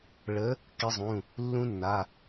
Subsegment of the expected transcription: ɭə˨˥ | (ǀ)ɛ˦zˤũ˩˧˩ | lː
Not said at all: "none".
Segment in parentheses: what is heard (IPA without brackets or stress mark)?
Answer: k